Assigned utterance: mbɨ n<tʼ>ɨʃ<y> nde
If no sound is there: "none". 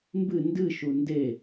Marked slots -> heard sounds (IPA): d, u

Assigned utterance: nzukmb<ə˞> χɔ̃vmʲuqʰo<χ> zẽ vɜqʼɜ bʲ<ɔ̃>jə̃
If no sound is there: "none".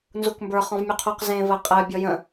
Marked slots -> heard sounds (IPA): ə˞, q, ɔ

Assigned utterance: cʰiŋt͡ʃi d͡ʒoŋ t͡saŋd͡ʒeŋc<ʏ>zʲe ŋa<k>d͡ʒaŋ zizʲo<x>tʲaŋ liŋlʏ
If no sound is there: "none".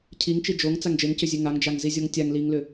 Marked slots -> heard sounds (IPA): ʏ, ŋ, ŋ

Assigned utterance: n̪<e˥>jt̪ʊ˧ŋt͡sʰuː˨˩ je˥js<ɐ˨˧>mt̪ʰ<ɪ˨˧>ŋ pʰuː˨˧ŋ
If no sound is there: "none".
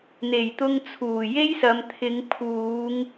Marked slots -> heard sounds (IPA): e˨˩, ɐ˨˧, ɪ˨˧

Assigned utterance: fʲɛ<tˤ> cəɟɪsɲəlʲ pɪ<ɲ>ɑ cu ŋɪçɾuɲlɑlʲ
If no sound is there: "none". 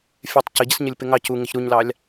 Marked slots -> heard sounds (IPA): tˤ, ŋ

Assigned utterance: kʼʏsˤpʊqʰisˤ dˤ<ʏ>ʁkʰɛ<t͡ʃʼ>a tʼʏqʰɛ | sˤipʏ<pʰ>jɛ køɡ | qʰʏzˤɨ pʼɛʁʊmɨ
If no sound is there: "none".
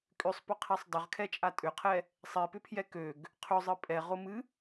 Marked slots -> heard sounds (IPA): ʏ, t͡ʃʼ, pʰ

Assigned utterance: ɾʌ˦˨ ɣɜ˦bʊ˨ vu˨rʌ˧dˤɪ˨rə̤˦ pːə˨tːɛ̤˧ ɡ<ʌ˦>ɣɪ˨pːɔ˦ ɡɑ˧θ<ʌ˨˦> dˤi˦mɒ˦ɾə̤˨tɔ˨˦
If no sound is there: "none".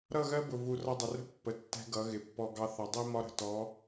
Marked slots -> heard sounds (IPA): ʌ˨˦, ʌ˨

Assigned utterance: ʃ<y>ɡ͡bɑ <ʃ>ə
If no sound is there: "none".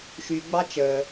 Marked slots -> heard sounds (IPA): y, t͡ʃ

